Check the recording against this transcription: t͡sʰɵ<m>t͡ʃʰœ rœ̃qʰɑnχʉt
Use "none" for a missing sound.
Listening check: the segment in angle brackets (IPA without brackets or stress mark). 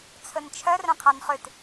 n